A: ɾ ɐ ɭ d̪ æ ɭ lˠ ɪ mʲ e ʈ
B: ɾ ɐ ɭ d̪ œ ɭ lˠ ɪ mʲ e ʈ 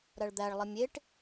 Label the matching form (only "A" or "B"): A